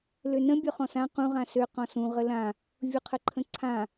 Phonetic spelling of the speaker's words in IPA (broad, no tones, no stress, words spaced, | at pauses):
lønə̃ bʲɔχɔ̃sã qũ ʁãsø qɔ̃sũ ʁəlã | vʲuqʰəǃʰə̃ǀʰã